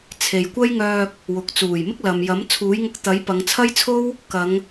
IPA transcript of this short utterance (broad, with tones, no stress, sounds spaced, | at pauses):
t͡sʰ e˨ j kʷ ɐ˥ j ŋ œː˧ k̚ | w ʊ˨ k̚ t͡s uː˨˩ j m ɪ˥ k̚ l ɐ˨ m j ɐ˨˥ m t͡sʰ uː˨˥ j ŋ ʊ˧ k̚ t̪ ɐ˨˥ j p ɐ˨˧ ŋ t͡sʰ ɐ˥ j t͡sʰ o˥ w | k ɐ˨˧ ŋ